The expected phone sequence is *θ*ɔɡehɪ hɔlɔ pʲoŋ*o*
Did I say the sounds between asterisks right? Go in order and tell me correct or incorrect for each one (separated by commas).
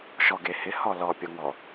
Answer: incorrect, incorrect